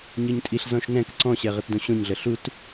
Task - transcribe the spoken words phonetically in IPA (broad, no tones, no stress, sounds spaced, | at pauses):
ɲ ə˞ ɲ tʼ i ɬ z ɔ̃ ʃ n ɛ̃ k ǀ ɔ̃ ɕ ɛ ʁ ə t d õ ɕ õ ɲ ɮ ə ɬ u t